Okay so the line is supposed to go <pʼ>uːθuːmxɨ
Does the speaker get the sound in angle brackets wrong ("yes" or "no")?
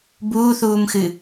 yes